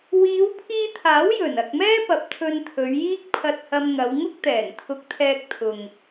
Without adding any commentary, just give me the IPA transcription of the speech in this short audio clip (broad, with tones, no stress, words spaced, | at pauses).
wiː˨˧wpʰiː˧t̪ʰaː˨˥w jɵ˨˩n ɐ˨k̚mɛː˥pɐ˨p̚ t̪ʰɵ˧nt̪ʰɵ˨˧ɥjiː˥k̚ pʰɐ˧t̚hɐ˧m ŋɐ˨˧wŋʊ˥k̚t̪ɛː˨˩n t̪ʰʊ˧k̚t̪ʰɛː˧k̚ t̪ʰʊ˨ŋ